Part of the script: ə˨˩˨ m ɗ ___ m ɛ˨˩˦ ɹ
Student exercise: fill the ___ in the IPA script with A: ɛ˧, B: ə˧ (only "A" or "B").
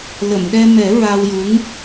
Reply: A